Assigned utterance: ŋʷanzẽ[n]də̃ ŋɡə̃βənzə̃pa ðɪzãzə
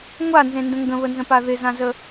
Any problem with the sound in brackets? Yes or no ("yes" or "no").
no